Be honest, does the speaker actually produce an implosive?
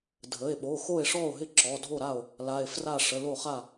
yes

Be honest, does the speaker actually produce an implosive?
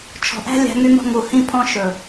no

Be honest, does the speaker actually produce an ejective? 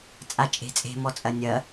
yes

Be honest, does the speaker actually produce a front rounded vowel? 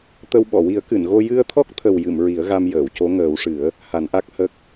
no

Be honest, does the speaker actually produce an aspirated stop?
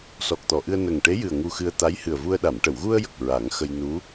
no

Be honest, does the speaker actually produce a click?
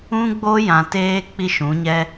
no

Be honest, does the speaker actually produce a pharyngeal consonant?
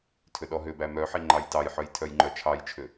yes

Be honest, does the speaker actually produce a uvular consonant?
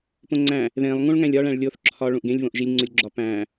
no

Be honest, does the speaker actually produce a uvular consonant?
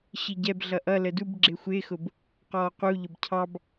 yes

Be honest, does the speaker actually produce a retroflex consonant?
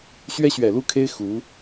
no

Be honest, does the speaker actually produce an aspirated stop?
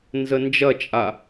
no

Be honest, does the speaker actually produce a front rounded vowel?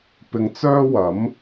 yes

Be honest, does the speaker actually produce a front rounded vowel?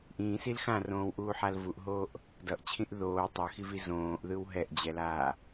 no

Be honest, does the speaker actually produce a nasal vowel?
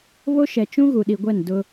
yes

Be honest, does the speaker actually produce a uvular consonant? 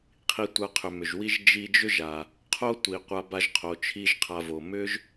yes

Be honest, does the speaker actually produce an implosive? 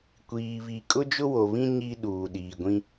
yes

